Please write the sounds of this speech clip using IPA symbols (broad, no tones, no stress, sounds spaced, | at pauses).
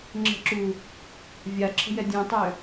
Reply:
ŋ͡ǁ ə̤ ǁ u | vʲ a ǁʰ ə̤ j ɛ dʲ ũ tˤ ø